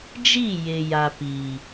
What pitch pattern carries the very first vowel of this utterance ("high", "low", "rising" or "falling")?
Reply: falling